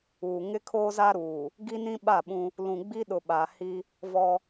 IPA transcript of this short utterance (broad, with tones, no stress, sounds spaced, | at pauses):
uː˨ ŋ ɪ˦ kʰ oː˦ z a˦ ɾ uː˨ | ɡ i˦ n ĩ˦ ɓ a˦˨ ɓ ũ˦ | l ũ˨ ɡ͡b i˦ ɗ ʊ˨ ɓ a˨ h i˦ | v ɔ˦